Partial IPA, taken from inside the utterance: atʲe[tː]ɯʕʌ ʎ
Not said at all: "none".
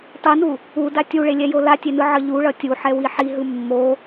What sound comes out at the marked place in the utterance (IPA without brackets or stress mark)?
n